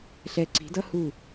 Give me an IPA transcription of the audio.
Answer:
ɬɛ˦˥ ǀi̤˨˥dʌ˦˥hu˦˨

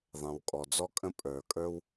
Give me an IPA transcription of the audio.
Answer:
ðˤɛ̃˩wkʼɔ˩d͡zɔ˥kʼə̃˥ pʼə˞˩kʼə˞˥w

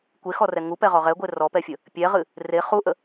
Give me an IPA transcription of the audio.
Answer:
kʷexɔrɛ ŋupɛʁɔ ʁɛɡʷe rɔpɛfʲə | pʲɛʁɨ | re χuʔə

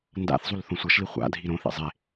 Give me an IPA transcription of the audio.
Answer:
nda̰θ zˤulθõsʷʌʃli χʷa̰dʱi ɾõθḛ zˤe

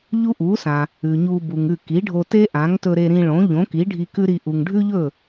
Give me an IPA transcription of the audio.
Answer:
ʎu˥ʔu˩˥sã˩ | ʉ˩ɲu˧ bu˩ŋʉ˥˩ ki˩˥ɖʱo˧te˥ ʔã˩˥ŋtɵ˧ɾe˧ ɾĩ˧ɭõ˩˥ʎõ˩˥ki˩˥ ɖʱi˧kʉ˥ɾi˧ ʔu˩ŋ ɖʱʉ˥ʎɵ˥˩

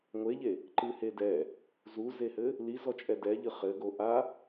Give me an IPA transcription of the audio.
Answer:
ŋʷeʎe | ǃɨhe dɛ | zuzehɘ | lizɔt͡ʃʼɛ dɛʎɨ χɘɡo ʔa

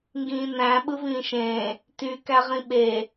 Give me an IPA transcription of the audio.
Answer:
ŋɡĩːnæ̃ ɓɯvĩːʃẽː | ty kæʁĩɓe

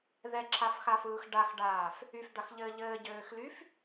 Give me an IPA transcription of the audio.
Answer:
ðɛǁʰafxafɯːx ɖaxɖaːf | yfd̪axʎɘː ʎɘːɟøːxlyf

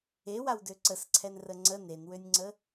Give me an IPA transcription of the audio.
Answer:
ewawdø ǀəsǀʰɛnrə ŋ͡ǀə nenwønʲŋ͡ǀə

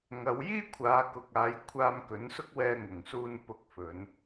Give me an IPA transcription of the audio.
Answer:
ŋɐ˨˧wjiː˥ kʷʰaː˨˧kʊ˨k̚aː˨˧j kʷʰaː˧mkɵ˨˥n sʊ˥k̚wɛː˧ŋʊ˨˩ŋsuː˧n pʊ˧k̚fɵ˨˧n

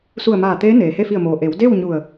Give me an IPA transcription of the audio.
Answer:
su˧˩ə̯maː˧˩ t̪eː˧˥ neː˩he˥˨ fi˧˩ə̯moː˩ ʔe˩˧wde˥˨w ɲu˧˩ə̯

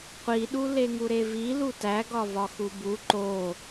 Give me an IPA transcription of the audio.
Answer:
qʷiɗu leŋuɾevi lutæɡɒ vɒxubu ǃo

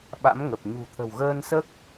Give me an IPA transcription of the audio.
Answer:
ɓa̰˧˥mŋə˨˩p̚ ɲṳ˨˩t̪ʰə̤˨˩w ɣəː˧nsəː˦˥k̚

